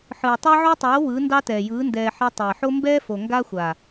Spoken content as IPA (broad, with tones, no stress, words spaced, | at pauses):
ħɯː˨tˤɑ˦ʕo˦tˤoː˨˦ wɯ˨˦ ndɑ˦tɛː˨jɯː˨˦ ndɛː˨ħɛ˧ tˤɛː˨ħo˦ mbɛː˦fo˨ ŋɡa˦xʷa˨